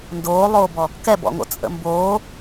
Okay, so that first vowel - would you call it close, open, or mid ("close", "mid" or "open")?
mid